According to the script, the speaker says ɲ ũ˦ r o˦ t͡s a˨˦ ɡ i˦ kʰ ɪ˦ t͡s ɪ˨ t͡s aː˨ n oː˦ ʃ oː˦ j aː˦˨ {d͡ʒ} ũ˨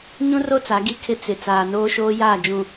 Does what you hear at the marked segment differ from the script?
no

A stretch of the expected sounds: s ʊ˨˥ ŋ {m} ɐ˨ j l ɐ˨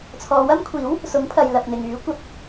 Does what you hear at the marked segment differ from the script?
yes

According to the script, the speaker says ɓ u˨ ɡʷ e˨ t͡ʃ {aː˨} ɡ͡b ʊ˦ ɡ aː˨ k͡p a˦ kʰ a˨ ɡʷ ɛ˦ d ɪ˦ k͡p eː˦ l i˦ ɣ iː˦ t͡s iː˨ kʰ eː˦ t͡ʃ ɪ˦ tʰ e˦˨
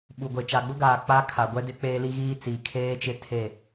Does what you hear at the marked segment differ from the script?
yes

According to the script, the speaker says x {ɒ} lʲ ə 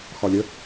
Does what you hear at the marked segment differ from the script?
no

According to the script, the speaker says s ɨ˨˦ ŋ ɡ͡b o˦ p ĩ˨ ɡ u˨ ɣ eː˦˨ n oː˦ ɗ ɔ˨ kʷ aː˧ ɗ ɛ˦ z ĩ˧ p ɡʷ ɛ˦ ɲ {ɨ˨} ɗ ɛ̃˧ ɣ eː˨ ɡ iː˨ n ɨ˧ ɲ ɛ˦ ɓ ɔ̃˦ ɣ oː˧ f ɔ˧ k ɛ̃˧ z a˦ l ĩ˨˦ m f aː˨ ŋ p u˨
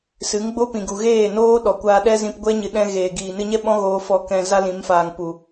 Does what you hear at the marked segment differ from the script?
no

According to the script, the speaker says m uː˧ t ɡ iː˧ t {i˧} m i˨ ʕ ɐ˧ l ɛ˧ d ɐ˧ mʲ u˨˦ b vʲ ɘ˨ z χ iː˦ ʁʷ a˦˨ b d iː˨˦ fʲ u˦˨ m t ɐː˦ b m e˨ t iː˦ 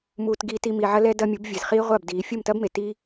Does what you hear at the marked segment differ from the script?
no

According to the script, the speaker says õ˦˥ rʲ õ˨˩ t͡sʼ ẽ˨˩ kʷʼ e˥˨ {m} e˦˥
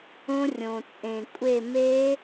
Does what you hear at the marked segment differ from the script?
no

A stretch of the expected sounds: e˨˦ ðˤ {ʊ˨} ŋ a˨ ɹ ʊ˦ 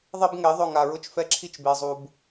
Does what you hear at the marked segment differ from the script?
yes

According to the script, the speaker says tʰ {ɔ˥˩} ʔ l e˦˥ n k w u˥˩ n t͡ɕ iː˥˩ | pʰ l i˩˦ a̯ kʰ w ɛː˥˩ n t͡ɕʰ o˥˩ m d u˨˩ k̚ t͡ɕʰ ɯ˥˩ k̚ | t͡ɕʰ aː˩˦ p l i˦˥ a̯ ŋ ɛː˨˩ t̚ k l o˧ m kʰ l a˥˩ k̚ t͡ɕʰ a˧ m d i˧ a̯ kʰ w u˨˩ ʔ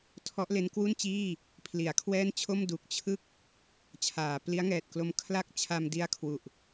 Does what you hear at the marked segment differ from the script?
yes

